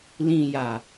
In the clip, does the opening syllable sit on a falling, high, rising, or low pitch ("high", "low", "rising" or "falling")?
low